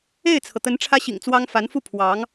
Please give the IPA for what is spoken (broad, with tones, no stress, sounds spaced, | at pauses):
e˥˩ ɪ̯ t͡sʰ ɤ˩ t̪ ə˧˥ n ʈ͡ʂʰ ä˥ ɕ ḭ˨˩ ŋ t͡s w ɑ˥ ŋ f a˧˥ n f u˥˩ pʰ w ɑ˧˥ ŋ